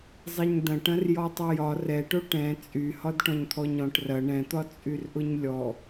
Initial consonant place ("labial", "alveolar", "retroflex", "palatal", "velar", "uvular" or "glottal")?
alveolar